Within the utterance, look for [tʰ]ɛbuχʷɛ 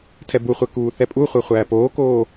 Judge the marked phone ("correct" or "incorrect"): correct